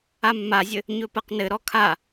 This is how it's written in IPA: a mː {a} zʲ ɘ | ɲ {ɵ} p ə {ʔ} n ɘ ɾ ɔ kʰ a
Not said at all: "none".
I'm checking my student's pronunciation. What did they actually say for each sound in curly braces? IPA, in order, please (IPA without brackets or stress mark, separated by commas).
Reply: a, ɵ, q